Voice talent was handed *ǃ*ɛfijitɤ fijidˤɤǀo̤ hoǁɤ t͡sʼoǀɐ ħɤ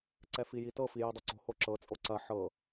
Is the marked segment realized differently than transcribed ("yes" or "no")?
yes